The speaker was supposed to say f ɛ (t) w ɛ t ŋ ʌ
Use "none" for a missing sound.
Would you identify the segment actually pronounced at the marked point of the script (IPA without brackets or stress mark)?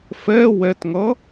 none